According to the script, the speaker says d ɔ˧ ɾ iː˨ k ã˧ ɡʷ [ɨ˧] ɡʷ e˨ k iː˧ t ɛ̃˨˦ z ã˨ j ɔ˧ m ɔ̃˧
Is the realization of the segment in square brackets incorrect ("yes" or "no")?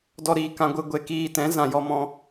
no